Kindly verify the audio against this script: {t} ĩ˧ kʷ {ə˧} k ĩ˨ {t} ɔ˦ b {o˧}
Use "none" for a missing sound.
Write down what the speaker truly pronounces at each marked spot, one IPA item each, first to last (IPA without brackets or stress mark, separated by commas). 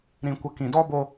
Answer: ɾ, ə˧, d, o˧